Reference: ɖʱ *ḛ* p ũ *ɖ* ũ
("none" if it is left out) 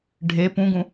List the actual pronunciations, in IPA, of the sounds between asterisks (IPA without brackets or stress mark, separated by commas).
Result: e, ɡ